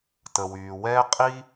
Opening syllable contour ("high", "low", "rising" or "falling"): low